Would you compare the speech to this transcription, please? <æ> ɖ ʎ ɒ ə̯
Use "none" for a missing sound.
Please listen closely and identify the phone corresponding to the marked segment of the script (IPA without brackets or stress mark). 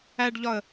æ